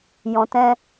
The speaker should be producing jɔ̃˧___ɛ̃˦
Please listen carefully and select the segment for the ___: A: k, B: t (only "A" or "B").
B